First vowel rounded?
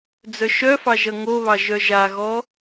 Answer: yes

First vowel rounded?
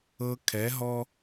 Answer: no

